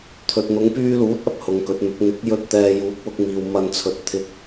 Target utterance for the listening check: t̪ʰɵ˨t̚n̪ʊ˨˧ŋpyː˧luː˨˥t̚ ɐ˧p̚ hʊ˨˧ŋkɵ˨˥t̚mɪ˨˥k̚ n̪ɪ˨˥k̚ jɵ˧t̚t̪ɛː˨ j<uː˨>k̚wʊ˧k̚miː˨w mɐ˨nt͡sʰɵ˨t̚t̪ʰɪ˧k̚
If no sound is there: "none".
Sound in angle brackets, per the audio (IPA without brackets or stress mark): uː˨˥